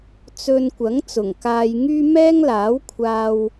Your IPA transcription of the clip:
t͡s ɵ˧ n kʷ ɐ˨˥ ŋ t͡s ʊ˨˩ ŋ k aː˧ j ŋ yː˥ m ɛː˥ ŋ l aː˨˥ w kʷʰ aː˧ w

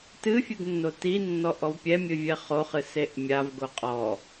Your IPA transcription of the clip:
t ɨ fʲ ɨ ɡ nː o t i nː ɔ ʔ ɔ v pʲ ɛ mʲ ɨ vʲ ɛ χ o χ ɨ s e ʔ mʲ a v ɡ o qʼ ɔ

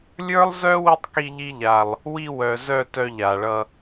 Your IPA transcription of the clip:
lʲ ə˞˦ lˠ z œ˦ w i˦ tˤ k i˧ ʎ i˧ ʎ a˨ lˠ | w i˧ w œ˨ z œ˦˨ t œ˧ ʎ a˨ ɭ ʌ˧

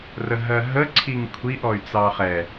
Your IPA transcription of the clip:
r ə ɦ ɜ ɦ ə ǀʰ i ŋ kʷʰ i ʔ ɔ y̯ t͡s ɑ χ ɛ

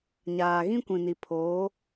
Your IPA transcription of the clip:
ɲ aː˨ ɣ ĩ˦ kʷ ĩ˨ n i˨ pʰ oː˨˦

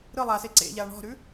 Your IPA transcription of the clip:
ɾ ɯ lˠ a s e ǀ ḛ ʎ a ɳ ɔ̤ ɾ ʉ

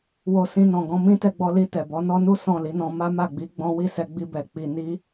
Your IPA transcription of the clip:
w o˧ s ĩ˧ n ɔ̃˨ ɡ ɔ̃˧ m ĩ˦ t ɛ˧ ɡ͡b ɔ˧ l i˧ t ɛ˨ b ɔ˨˦ n ɔ˦ n u˦ s ɔ̃˦˨ l i˨˦ n ɔ̃˧ m a˦ m a˦˨ ɡ͡b i˨˦ ɡ͡b ɔ̃˦ w i˦˨ s ɛ˧ ɡ͡b i˧ b ɛ˨ k͡p i˧ n i˦

